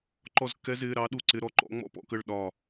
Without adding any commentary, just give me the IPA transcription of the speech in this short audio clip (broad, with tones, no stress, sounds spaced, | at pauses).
ǃ ɔ˥˩ z kː ɛ˦˥ z ɪː˧˥˧ ɾ ɑ˦˥ ɗ u˥˩ ǀ ɪ˧˥˧ ɾ ɔ˧˥˧ ǃ ɔ̰˦˥ ŋ͡m ɔ̰˥˩ p ɔ̰˧˥˧ k ə˥˩ ɭ ɗ ɒ˧˩